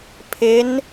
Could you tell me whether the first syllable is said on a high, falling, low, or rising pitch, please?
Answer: rising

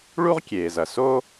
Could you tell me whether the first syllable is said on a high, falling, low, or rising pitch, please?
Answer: high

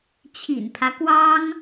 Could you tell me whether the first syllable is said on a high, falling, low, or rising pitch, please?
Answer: low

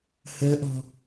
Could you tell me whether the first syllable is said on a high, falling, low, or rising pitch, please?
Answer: rising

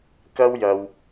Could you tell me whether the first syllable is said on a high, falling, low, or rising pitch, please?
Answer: high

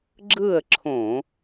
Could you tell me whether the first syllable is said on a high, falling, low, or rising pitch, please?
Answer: falling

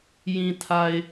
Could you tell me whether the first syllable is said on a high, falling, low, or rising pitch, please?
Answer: low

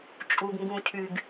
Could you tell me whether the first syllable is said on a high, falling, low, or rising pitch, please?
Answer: low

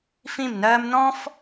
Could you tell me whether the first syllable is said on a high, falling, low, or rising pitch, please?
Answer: falling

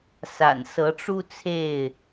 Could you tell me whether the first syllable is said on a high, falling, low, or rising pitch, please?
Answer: low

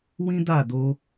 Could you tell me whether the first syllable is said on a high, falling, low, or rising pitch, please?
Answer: high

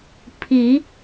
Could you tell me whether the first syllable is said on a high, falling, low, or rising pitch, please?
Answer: rising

